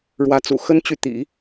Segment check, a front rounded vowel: present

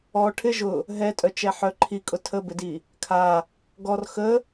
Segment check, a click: present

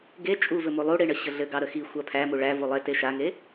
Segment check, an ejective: present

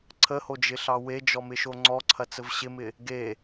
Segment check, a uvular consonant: absent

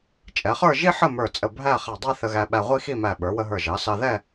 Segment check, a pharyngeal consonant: present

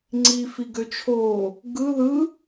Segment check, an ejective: absent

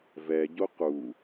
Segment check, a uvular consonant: present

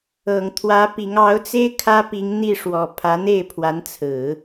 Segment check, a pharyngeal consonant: absent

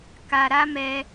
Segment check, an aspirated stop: absent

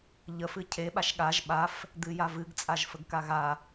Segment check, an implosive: present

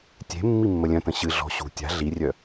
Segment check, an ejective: absent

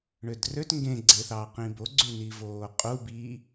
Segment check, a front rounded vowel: present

